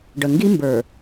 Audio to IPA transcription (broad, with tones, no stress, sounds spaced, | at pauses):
ɖ ə˨ ŋ ɡ i˦ m b ə˞˨